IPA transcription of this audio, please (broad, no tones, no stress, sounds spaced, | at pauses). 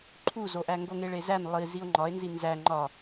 ǃʰ u z o ʔ æ ŋ ɡ o ŋ e ɭ e z æ n lˠ i z i o̯ ŋ͡ǃ ɒ e̯ n z i n z æ ŋ͡ǃ ɒ